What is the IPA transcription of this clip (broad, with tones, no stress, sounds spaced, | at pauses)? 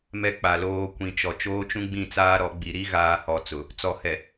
m ɛ˦ k͡p a˨ l oː˦ kʷ ĩ˨ t͡ʃ ɔ˨ t͡ʃ oː˦ t͡ʃ ũ˦ ɡ͡b ĩ˦˨ t͡s aː˦ ɾ ɔ˨˦ ɡ͡b i˨ ɾ i˦ ɣ aː˨ h ɔ˨ t͡s ʊ˨ | t͡s ɔ˨ h ɛ˨